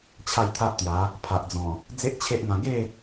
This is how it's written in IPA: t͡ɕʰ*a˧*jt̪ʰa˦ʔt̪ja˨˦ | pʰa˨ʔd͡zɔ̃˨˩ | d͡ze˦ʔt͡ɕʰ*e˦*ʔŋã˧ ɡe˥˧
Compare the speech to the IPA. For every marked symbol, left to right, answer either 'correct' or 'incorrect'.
incorrect: a˥˧, correct

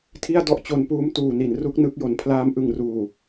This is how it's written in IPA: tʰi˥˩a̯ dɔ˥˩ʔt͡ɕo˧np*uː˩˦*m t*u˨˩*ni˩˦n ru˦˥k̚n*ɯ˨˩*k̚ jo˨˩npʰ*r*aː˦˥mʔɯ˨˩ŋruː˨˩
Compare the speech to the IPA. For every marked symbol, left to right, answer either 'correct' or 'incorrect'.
incorrect: uː˦˥, incorrect: uː˨˩, incorrect: ɯ˦˥, incorrect: l

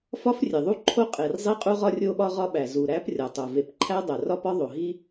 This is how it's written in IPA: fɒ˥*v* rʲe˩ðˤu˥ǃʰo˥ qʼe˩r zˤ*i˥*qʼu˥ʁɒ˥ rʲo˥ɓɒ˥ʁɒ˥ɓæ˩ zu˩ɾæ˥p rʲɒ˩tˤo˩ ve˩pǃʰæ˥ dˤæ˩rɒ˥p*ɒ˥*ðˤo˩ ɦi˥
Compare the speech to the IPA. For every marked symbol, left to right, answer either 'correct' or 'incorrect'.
incorrect: f, correct, correct

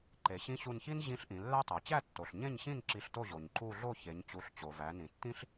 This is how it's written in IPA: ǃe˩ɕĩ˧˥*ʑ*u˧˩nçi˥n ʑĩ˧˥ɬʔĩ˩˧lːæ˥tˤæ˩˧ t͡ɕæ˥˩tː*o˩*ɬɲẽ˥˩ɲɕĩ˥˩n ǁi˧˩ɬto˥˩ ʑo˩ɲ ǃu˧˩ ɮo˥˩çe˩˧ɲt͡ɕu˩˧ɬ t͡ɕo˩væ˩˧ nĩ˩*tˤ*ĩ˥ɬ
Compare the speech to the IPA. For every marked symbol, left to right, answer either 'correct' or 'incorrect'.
incorrect: ɕ, correct, incorrect: tː

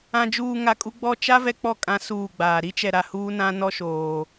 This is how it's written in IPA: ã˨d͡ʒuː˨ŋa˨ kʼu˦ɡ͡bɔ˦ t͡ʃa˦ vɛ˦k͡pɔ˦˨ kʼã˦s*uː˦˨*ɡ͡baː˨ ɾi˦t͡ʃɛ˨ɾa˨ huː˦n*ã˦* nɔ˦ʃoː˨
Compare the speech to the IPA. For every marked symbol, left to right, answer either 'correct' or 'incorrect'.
correct, correct

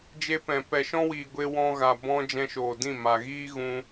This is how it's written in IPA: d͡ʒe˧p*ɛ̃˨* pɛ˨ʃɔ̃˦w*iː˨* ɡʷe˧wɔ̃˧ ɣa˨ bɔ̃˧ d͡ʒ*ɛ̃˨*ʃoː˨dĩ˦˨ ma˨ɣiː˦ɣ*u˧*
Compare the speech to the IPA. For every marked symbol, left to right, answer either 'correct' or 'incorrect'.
correct, correct, incorrect: ɛ̃˧, incorrect: ũ˧

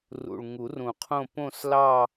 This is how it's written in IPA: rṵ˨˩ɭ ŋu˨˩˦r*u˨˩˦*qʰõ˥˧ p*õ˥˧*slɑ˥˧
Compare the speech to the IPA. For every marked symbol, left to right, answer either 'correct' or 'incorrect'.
incorrect: ũ˨˩˦, correct

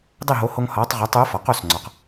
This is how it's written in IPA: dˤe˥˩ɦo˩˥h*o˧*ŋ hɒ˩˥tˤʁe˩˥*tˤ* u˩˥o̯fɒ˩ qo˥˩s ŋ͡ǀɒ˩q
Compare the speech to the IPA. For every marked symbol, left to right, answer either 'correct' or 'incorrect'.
correct, correct

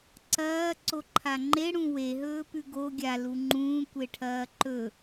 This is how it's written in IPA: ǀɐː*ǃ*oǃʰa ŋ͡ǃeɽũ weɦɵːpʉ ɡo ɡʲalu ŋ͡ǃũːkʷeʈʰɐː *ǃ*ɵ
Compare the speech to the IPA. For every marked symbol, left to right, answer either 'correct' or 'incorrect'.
incorrect: ǀ, correct

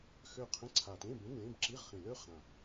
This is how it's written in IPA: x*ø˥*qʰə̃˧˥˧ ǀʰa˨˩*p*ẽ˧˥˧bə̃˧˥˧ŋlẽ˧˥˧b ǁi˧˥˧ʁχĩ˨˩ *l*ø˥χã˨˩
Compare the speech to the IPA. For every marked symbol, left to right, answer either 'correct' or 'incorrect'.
incorrect: ø˦˨, incorrect: t, correct

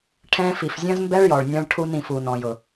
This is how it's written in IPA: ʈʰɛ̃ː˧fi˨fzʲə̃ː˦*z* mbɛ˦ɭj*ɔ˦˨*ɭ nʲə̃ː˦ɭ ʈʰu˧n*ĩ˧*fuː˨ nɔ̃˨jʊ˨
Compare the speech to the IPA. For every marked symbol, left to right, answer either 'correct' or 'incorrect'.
correct, incorrect: ɔ˨, incorrect: ĩ˨

